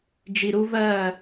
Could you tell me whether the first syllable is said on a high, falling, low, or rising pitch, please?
low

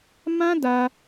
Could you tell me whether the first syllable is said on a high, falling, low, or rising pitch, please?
high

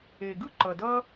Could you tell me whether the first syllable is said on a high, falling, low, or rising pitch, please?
low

